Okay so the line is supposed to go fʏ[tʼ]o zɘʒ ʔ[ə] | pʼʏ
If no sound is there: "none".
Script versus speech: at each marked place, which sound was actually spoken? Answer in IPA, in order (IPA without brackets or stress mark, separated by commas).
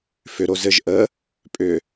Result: ɾ, ə